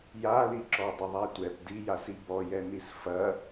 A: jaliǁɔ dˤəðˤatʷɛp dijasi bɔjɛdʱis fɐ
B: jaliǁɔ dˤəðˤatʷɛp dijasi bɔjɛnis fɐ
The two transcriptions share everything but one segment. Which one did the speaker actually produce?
B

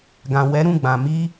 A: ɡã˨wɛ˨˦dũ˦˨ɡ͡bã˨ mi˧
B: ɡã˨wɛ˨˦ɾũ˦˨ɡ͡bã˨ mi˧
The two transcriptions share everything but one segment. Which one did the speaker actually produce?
B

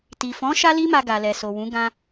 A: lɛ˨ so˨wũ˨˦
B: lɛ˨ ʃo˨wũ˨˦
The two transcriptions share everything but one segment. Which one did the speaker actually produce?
A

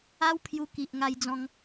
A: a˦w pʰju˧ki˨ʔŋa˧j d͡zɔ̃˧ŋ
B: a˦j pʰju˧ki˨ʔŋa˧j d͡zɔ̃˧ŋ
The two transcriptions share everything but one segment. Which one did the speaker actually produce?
A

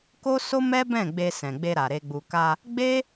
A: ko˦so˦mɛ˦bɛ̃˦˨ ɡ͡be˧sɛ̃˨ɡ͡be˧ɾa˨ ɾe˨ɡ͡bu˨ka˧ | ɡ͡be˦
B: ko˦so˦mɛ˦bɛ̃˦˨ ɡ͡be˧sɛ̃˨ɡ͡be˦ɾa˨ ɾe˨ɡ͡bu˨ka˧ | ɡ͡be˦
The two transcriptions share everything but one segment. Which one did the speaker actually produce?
A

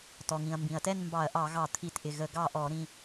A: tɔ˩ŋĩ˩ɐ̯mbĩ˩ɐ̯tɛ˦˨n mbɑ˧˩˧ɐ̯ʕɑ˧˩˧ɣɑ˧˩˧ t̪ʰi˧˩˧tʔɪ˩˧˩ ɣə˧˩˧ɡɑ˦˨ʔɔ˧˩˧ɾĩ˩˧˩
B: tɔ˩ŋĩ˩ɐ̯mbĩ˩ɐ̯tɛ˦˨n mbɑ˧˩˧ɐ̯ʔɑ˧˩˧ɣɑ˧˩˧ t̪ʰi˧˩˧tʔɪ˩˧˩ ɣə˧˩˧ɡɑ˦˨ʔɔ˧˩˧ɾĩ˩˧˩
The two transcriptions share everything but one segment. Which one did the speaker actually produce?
B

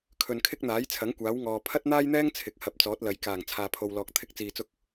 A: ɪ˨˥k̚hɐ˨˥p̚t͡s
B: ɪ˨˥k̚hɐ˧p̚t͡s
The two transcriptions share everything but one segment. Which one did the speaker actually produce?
A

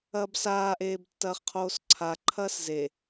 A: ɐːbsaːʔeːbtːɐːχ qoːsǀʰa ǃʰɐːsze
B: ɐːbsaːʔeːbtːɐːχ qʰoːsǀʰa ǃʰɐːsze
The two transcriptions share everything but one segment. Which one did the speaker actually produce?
B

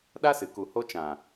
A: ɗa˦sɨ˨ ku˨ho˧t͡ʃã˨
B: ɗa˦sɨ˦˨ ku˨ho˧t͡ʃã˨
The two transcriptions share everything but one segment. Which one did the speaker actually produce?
A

